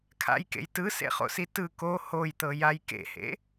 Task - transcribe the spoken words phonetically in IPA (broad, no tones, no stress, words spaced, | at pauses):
kʰa̰jkḛj tɯsḛχo̰si tɯ ko hojt̪ɤjaj kḛhḛ